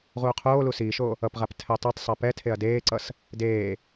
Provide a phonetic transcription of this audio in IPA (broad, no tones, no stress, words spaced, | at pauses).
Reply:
ʁuːqʰoːlu siːʃoː | ʌpʁap tʰɛtˤitˤsˤɛ pɛtʰeɐ̯ deːǀʌs | deː